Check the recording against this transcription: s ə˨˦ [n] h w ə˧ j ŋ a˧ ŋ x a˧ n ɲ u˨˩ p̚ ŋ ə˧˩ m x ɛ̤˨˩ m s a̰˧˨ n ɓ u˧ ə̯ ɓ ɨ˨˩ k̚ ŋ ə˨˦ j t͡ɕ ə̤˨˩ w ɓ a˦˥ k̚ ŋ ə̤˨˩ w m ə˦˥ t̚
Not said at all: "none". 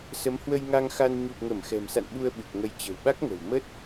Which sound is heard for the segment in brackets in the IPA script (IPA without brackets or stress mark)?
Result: m